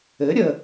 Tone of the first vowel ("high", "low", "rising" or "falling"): rising